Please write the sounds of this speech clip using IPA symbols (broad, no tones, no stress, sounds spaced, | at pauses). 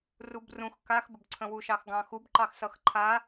r u b r ũ x k a x b ə b ǀʰ ə̃ w u ʃ ɑ x ɡ ɑ̃ x u b ǃ ɑ x s ʌ x ǃʰ a